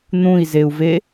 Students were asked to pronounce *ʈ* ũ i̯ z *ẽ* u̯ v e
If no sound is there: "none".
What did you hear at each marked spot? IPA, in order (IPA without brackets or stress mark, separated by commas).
n̪, e